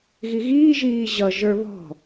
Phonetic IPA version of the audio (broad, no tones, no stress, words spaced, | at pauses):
ɣiɣiː ʒiːʑʌ ʒə˞βɔ̤